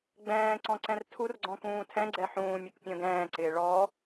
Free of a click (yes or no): no